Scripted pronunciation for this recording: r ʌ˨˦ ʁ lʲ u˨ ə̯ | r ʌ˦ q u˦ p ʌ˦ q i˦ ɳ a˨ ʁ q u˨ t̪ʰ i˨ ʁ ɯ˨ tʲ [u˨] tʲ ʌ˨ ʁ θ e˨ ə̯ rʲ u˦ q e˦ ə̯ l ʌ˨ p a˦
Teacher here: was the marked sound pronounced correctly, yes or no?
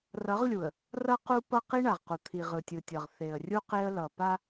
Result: no